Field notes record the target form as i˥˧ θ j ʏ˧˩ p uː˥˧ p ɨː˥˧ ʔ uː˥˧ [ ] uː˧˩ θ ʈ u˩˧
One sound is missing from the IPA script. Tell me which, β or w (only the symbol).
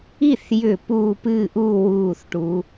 w